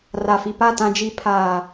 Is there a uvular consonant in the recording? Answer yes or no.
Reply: no